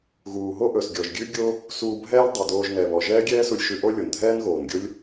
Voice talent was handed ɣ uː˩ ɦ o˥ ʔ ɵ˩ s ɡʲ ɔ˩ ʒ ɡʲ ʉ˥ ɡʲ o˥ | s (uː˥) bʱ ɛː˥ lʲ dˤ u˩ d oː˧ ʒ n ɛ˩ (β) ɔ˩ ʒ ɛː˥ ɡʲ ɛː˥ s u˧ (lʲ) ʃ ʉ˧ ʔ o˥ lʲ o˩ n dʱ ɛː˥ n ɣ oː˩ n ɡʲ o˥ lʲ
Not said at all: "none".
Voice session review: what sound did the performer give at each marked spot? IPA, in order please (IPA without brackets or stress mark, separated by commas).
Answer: uː˧, β, lʲ